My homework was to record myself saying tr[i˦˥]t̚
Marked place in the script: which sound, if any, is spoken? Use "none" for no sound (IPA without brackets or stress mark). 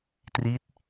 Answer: i˦˥